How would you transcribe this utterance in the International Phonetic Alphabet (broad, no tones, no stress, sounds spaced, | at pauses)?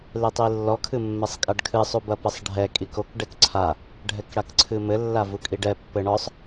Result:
l e tˤ i lː ɔ kʰ ɨ mː ɛ sˤ kʼ a ɖ kʰ ɨ sˤ u b ɐ p ɘ sˤ ɖʱ ɛ kʼ i k o k ɖ ɛ k ǀʰ a | ɖʱ ɛ k ɽ a k ǀʰ ɨ m ɘ lː a v u kʼ i ɖ ɛ pː ɘ ɳ ɔ sˤ